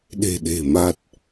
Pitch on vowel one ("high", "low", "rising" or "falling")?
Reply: low